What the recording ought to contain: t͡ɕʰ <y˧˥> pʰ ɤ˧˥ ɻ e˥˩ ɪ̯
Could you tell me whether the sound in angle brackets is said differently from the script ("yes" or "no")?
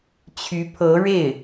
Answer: no